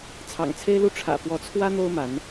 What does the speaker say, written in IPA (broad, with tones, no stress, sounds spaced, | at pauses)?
t͡sʰ ɑ̰˨˩ ŋ t͡sʰ e˦ ɪ̯ l u˦ ʈ͡ʂʰ ä̰˨˩ f w ɔ˨˦ t͡sʰ w ä˦ n̪ o˦ ʊ̯ m a˨˦ n